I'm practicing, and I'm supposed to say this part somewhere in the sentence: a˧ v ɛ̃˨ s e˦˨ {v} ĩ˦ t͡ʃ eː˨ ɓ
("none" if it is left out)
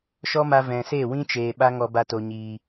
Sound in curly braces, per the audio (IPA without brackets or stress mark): w